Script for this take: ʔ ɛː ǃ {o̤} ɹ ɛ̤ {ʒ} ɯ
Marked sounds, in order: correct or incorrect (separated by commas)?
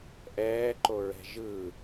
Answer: incorrect, correct